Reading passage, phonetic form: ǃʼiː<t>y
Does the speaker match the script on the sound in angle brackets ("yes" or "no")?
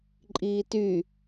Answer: yes